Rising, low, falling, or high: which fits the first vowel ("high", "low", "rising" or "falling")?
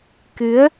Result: rising